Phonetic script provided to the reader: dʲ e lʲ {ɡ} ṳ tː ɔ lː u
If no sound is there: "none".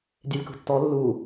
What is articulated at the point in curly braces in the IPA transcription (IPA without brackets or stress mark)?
k